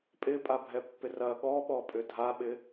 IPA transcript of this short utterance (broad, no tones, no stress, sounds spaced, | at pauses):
pʼ ɪ pʼ a bʱ ɛ pː ɪ r ɐ ɠ ɔ ɓ ɔ pʼ ʏ dʱ a ɓ ɪ